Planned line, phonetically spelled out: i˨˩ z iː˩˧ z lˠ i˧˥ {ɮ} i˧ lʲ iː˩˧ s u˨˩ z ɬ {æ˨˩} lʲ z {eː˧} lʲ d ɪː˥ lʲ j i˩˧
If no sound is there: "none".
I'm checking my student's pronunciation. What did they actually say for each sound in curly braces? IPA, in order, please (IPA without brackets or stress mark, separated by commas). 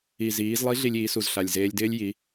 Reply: ɮ, a˨˩, eː˧